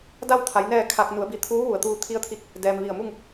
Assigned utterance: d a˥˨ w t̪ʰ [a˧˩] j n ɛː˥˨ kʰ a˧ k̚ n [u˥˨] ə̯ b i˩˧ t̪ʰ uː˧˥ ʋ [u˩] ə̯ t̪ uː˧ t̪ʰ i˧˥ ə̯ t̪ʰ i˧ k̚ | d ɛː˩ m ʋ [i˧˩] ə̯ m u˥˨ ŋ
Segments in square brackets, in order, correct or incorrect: incorrect: a˩˧, incorrect: u˩˧, correct, correct

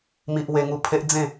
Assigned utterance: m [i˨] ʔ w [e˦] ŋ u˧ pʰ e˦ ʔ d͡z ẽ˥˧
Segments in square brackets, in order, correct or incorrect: correct, incorrect: e˧

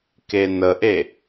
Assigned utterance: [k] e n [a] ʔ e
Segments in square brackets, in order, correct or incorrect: correct, incorrect: ə

